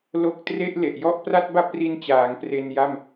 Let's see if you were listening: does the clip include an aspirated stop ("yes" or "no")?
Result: no